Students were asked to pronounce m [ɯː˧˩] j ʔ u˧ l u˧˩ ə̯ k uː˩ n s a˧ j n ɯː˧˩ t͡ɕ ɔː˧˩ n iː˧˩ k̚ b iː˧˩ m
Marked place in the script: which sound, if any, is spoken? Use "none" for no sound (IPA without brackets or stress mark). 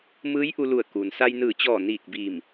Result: ɯː˧˥